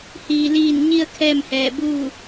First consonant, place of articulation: glottal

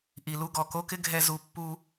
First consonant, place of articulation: glottal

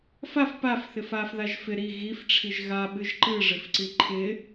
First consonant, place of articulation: labial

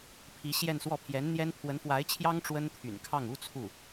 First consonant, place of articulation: labial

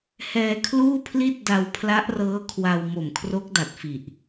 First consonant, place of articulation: glottal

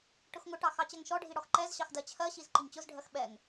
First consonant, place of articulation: retroflex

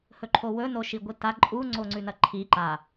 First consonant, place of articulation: glottal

